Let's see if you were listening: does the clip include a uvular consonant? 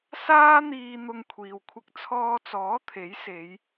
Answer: no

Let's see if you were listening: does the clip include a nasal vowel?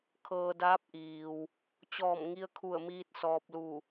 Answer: no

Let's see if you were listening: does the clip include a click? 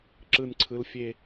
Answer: yes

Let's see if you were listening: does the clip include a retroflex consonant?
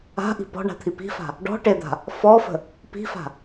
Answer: yes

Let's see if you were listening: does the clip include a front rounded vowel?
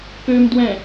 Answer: yes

